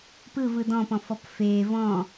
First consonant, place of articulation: labial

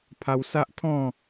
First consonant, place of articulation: labial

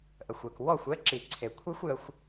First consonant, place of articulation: glottal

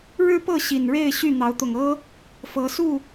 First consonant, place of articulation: retroflex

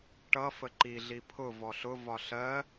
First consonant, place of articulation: retroflex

